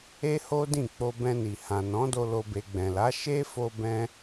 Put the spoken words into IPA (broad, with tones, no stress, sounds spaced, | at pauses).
e˦ h o˦ d ĩ˦˨ k͡p o˧ b ɛ̃˧ n i˨ h ã˨ n ɔ̃˨˦ d o˧ l o˧ b e˧ ɡ͡b ɛ̃˨ l a˨˦ ʃ e˦ f o˧ b ɛ̃˦